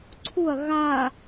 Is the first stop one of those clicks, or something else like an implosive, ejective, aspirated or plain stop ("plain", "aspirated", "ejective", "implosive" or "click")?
click